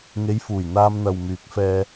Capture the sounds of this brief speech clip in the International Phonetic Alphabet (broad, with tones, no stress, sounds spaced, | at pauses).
ŋ e˨˧ j f uː˨˩ j n̪ aː˧ m n̪ ɐ˨ w m yː˨˥ k̚ f ɛː˧